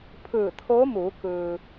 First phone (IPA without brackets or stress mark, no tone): pʰ